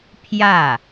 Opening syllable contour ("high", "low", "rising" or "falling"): falling